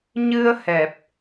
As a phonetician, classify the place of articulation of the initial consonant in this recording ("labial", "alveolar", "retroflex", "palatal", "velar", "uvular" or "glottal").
palatal